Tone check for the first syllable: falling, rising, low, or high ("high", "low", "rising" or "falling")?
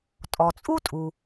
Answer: low